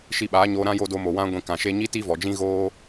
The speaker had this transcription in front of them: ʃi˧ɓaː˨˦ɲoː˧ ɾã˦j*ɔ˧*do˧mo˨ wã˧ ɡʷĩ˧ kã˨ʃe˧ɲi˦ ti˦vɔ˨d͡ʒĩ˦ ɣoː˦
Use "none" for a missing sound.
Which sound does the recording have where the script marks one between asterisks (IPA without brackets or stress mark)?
o˧